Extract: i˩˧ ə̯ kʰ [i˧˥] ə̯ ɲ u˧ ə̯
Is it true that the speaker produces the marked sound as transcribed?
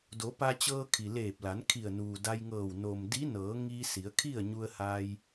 no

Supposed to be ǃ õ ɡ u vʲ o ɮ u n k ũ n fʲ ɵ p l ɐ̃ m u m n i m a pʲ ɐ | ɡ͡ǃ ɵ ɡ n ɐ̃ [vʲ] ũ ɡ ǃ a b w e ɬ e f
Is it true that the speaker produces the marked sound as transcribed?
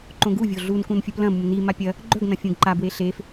no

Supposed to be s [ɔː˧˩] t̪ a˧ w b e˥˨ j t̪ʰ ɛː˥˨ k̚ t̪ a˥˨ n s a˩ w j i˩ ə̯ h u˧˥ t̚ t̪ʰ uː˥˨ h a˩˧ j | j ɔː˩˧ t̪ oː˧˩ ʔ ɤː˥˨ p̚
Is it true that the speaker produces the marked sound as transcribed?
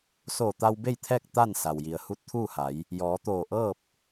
no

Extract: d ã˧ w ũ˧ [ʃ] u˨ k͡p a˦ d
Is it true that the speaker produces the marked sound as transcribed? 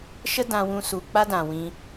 no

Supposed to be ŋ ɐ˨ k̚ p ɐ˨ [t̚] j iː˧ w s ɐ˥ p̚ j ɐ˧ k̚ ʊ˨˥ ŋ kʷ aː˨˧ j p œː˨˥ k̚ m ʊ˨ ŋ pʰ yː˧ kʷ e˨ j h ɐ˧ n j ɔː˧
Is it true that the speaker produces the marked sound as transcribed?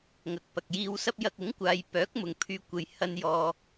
no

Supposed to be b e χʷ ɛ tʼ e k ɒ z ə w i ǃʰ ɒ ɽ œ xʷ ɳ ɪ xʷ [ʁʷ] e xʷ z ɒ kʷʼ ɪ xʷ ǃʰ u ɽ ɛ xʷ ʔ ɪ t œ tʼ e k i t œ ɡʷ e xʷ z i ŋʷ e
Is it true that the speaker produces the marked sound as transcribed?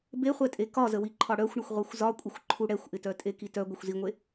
yes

